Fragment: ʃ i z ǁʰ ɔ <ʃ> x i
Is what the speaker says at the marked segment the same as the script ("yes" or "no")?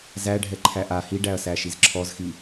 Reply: no